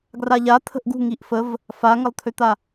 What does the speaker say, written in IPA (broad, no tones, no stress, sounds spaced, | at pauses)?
ɡ r a ʎ a t̪ʰ ə̤ ʔ ɡ ṳ ŋ i ʔ f ə v | f a ŋ ə lˠ t̪ʰ ø t̪ a